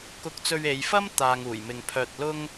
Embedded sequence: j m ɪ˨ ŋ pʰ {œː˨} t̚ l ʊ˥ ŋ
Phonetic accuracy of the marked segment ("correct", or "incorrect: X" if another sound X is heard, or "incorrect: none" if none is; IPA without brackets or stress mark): incorrect: œː˧